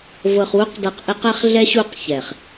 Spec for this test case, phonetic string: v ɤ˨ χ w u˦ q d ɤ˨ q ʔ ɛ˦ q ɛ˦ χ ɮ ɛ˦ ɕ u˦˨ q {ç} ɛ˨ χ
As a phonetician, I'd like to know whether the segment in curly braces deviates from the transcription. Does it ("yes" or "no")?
no